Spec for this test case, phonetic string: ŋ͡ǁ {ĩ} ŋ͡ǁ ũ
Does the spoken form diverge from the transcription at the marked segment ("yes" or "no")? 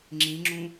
no